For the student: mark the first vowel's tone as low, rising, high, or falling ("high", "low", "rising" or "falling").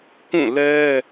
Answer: falling